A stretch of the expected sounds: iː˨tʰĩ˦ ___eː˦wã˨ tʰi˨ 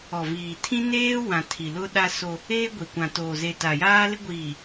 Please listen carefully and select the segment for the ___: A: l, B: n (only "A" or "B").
B